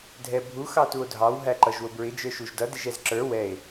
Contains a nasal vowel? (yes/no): no